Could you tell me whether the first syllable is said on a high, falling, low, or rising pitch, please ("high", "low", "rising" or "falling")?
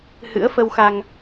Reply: rising